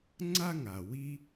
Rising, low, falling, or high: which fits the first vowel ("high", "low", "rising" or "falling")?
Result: high